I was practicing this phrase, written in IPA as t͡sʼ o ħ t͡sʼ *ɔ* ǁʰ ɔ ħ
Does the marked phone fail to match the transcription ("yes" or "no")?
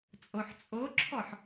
yes